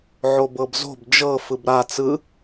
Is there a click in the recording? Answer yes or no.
no